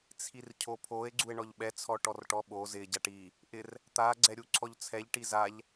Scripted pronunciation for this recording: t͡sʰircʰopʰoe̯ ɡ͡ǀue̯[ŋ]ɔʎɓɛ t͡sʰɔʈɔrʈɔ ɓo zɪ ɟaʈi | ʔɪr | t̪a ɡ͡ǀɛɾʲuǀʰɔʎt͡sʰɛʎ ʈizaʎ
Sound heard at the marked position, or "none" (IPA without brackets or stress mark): ɳ